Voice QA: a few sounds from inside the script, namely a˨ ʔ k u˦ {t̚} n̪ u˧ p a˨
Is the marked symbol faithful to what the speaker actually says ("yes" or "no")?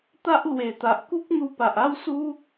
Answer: no